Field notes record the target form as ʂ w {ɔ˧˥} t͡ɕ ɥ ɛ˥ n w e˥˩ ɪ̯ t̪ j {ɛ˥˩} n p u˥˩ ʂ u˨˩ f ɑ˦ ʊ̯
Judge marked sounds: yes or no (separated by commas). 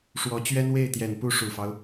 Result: yes, no